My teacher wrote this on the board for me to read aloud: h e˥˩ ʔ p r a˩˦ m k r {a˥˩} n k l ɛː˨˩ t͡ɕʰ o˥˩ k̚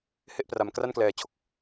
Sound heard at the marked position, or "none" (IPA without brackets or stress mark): a˥˩